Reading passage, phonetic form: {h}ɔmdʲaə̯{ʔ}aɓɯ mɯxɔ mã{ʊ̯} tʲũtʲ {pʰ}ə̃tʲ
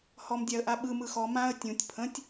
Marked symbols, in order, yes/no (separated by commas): yes, yes, no, yes